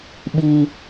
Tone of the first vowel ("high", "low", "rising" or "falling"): low